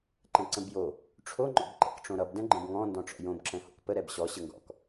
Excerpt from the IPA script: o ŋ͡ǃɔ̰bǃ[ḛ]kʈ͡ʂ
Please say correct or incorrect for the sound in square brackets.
incorrect